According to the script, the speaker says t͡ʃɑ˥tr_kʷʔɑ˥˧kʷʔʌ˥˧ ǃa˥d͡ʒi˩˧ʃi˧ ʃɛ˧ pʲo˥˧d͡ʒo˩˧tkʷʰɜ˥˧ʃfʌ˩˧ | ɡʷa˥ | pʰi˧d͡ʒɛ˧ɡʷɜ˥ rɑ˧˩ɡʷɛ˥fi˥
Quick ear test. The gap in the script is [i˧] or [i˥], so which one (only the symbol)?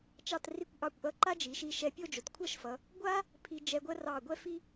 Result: i˥